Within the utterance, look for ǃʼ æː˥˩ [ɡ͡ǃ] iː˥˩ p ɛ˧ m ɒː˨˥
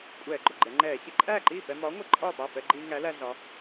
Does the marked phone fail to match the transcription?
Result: yes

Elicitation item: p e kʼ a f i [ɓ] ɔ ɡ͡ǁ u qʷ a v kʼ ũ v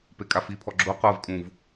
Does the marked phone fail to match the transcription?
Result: yes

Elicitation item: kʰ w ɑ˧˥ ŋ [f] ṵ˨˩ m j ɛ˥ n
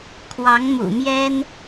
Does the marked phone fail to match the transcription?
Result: yes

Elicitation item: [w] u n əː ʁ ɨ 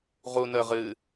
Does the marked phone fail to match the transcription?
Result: yes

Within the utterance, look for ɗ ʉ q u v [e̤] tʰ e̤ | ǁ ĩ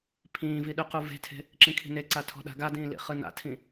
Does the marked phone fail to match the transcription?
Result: no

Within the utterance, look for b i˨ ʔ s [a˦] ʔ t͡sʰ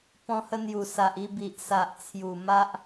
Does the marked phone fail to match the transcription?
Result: yes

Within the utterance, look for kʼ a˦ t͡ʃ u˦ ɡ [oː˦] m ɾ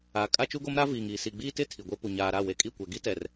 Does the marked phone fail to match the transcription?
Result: yes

